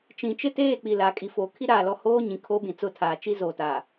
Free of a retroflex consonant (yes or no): yes